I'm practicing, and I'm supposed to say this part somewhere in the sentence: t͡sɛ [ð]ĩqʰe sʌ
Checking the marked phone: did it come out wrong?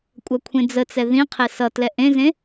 no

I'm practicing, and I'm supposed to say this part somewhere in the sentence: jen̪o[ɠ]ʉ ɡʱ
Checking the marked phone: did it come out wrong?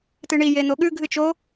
no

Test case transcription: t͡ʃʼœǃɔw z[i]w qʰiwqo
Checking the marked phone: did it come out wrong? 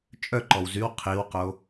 yes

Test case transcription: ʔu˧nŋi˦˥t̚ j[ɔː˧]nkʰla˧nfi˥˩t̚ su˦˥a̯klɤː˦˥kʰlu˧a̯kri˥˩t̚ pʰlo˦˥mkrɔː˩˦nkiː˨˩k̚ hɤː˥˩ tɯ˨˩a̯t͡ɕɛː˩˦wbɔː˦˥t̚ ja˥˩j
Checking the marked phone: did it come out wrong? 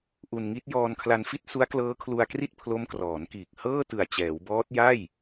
no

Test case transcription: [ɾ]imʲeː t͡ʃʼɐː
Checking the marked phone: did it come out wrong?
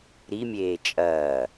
no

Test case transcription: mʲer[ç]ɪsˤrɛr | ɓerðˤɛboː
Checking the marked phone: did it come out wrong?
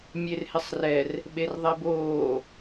yes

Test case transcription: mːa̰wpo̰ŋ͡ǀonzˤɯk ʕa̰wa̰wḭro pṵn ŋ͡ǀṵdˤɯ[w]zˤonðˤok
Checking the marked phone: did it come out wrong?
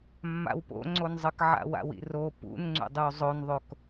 no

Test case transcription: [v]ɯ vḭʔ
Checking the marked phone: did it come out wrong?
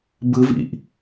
yes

